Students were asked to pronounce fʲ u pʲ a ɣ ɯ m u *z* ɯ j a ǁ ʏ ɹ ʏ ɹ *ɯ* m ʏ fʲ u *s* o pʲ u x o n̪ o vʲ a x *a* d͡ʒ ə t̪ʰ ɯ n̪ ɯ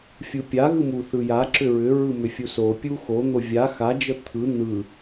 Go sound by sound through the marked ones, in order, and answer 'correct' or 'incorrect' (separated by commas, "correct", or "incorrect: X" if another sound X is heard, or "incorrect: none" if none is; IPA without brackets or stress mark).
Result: incorrect: θ, correct, correct, correct